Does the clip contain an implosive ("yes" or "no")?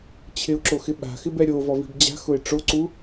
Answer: yes